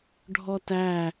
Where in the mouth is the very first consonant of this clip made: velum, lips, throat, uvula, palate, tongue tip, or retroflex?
retroflex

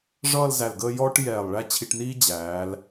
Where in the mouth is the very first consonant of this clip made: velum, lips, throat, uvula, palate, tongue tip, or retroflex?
retroflex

